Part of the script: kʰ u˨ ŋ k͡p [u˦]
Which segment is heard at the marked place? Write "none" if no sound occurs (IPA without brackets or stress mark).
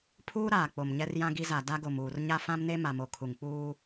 uː˦